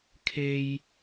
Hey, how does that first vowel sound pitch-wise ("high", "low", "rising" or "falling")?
high